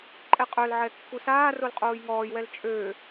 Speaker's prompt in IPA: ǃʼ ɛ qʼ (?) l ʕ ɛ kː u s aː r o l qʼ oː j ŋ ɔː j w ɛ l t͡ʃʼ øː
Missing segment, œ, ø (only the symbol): œ